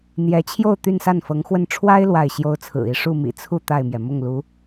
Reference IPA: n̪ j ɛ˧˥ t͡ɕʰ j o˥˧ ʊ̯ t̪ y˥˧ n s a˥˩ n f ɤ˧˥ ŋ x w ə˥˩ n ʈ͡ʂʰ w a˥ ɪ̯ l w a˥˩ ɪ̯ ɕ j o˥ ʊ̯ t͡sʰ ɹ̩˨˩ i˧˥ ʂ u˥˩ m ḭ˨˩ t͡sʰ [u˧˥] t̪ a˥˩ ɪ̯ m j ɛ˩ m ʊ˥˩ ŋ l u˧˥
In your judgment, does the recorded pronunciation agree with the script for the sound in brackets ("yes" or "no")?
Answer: no